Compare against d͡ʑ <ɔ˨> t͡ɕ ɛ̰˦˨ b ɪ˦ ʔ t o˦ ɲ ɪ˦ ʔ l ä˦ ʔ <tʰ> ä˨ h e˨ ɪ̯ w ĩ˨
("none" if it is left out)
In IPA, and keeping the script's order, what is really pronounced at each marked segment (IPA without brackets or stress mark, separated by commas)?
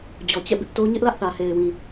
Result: ɔ˨, θ